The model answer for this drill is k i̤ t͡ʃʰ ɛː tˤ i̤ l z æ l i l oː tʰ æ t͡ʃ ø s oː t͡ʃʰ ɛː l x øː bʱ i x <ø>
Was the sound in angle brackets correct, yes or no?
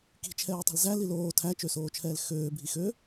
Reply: yes